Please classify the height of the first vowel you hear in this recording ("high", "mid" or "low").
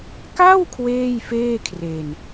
low